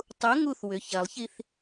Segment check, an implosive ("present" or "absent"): absent